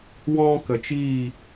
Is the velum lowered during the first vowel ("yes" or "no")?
yes